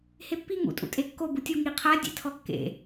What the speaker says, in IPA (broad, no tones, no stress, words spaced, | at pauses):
hepːi ŋṵ tʼṵtʼekːo butʲu ŋiqʰa dʲḛtʰɔkːḛ